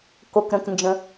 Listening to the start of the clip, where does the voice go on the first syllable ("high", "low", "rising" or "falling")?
low